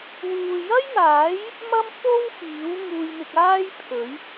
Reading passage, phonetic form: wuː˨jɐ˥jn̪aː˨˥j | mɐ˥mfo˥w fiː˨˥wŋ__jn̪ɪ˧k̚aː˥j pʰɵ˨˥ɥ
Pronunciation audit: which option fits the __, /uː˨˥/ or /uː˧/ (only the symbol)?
uː˧